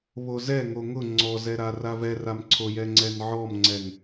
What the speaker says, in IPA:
β o z ɛ ŋ o ŋ ʊ ŋ͡ǀ ɔ z ɛ ɾ a r a v ɛ r a m ǀʰ o j ɛ ŋ͡ǀ ɛ n ʕ ɔ m ŋ͡ǀ ɛ ŋ

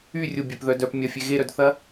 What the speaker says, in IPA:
y rʲ ʊ bʲ œ p ð œ d œ p mʲ ɐ fʲ e ɣ e ɾ œ d θ ɐ

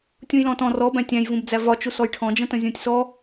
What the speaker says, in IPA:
tʲ ũ j l ɔ̃ t ɔ̃ r ɔ b æ̃ tʲ æ̃ j v ũ b d͡z æ v ɒ t͡ʃ u s ɔ j ʈʰ ɔ̃ d͡ʒ ə̃ t ə̃ zʲ ũ tʲ s ɔ

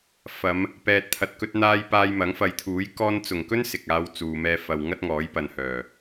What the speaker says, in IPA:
f ɐ˨˧ m | p ɛː˨ t̚ t̪ʰ ɐ˨ t̚ k ɵ˧ t̚ n̪ aː˧ j p aː˧ j m ɐ˨˥ ŋ f ɐ˨˧ j t̪ʰ uː˨˥ j k ɔː˧ n t͡s ʊ˨˩ ŋ k ɵ˥ n s ɪ˨ k̚ aː˧ w t͡s uː˨ m ɛː˧ f ɐ˨ w ŋ ɐ˥ t̚ ŋ ɔː˨˥ j p ɐ˨ n h œː˨˩

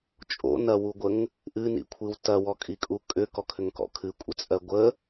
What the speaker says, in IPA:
t͡ʃʼ o̰ n ɐ w u ɡʷ ə ŋ | ʔ ɨ n ḭ kʷʰ ɨ w t ɐ w ɔ kʼ i kʼ u kʼ ʏ k ɔ kʰ ʏ ŋ k ɔ̰ kʰ ɨ kʷʼ ə t͡sʼ ɜ ɡʷ ə

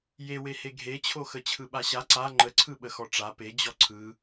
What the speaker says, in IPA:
j e w e h e ɡʱ e t͡ɕʰ o x ə t͡ɕʰ ɯ ɓ a ɕ a ǀ a ŋ͡ǃ ə ǀʰ ɯ ɓ ə x ɔ ʈ͡ʂ a p e d͡ʑ ɔ ǀʰ ɯ

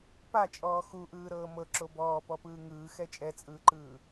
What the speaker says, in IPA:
p a t͡ʃʼ ɔː x u ʔ ɯː ɾ ɤː m ɤ ǁ o b ɔː p ɔ p ɯː ŋ ɯː x ɛ t͡ʃʼ ɛ t͡sʼ ɯː ǃ ɯː

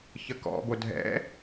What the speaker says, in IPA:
ç ə k ɔ̰ b o dʱ ɛ̰

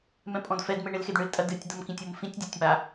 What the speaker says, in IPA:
m ɛ̃ pʼ ɔ̃ d f ɛ d m e ɳ e l x e d ɳ ɨ l tʼ ɐ d ɨ tʲ d̪ ɐ m k ĩ tʲ o m f ĩ tʲ dʲ ɔ tʲ m a

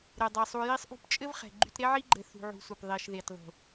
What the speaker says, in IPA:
ɾ e˨ dˤ e˨ sˤ u˧ j i˦ sˤ ʔ ṳ˦ p t͡ʃʼ ɘ˦ v χ ɛ̤˨ ɡ͡ǃ y˧ t ɾ e˦ ʕ i˦ ɡ͡ǃ ɘ˧ θ ṳ˧ ʕ ṳ˧ s u˨ p ðˤ i˨ ʃ ð e˨ t ðˤ ṳ˨

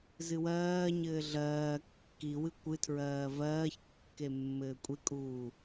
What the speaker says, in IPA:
z ɨ w ɜː ɲ ɘː ɮ ɜː kː i w ɨ kʷ ɨ tʰ ɹ ɜː v ɜː ç kː e mː ɘː kʷʼ e kʼ uː

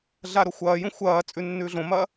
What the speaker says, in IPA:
ɮ a ɾ o xʷ ɐː j ũ xʷ ɐː t͡sʼ ʉ nː ʉː ɮ õ m ɐː

